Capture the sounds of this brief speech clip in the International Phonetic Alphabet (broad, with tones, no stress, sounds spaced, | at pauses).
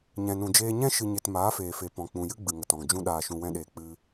ɲ ɛ̃˨ n ũ˨ d͡ʒ eː˧ ɲ ɛ̃˦ ʃ ɨ˨ ɲ e˨ t m aː˨˦ f eː˨ f e˨ p ɔ̃˨ k͡p ũ˨ j ɨ˦ ɡ͡b ɨ˨ ŋ ə˨ t ɔ̃˨ ŋ d͡ʒ ũ˦ ɗ aː˨ ʃ ũ˨ w ɛ̃˧ ɗ eː˨ k͡p ɨ˧